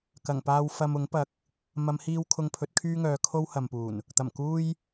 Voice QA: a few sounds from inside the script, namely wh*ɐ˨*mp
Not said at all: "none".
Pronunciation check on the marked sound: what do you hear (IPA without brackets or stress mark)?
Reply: ɐ˨